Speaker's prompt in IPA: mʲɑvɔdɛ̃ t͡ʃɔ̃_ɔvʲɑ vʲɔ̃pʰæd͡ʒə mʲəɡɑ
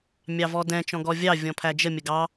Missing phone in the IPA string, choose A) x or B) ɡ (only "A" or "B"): B